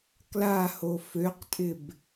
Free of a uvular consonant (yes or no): no